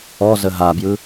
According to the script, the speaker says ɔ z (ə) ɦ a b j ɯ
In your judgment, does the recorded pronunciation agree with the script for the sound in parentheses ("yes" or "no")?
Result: yes